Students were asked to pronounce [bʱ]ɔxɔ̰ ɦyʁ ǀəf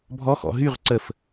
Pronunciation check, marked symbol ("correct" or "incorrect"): correct